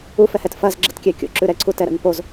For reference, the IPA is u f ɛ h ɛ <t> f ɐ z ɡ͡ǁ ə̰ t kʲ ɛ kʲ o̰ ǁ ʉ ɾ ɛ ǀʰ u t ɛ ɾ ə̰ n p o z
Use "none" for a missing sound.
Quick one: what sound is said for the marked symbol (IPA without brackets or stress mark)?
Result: t